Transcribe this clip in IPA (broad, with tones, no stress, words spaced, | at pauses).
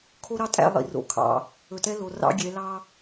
kʰo˦ɾɑ˦ tʼæ̰˦˨ lˠḭ˨ ro̰˨kʰɑ̰˨ | ɵ˨tɛ˦lo˨ rɑ̰˦ɡʲɛ˨˦ lɑ˦